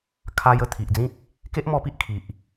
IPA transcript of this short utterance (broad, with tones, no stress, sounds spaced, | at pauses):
kʰ a˧ j ə˧ t̪ʰ i˨ ʔ d͡z ĩ˦ k̚ | k e˦ ʔ m ɔ˧ p i˦ ʔ kʰ i˨ ʔ